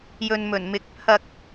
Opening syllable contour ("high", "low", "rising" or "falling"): low